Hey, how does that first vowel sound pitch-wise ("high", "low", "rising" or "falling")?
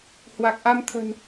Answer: low